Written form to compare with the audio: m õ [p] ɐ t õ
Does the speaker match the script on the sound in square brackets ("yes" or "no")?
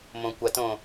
no